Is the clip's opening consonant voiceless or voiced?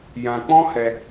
voiced